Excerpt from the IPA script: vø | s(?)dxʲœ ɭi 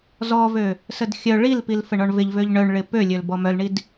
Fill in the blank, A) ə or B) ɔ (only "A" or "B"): A